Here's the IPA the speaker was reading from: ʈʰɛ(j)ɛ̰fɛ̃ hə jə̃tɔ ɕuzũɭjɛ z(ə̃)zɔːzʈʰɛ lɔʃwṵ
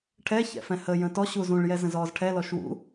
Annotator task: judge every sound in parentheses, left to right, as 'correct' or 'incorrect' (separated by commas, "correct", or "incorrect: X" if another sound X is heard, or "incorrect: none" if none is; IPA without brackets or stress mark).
incorrect: ç, correct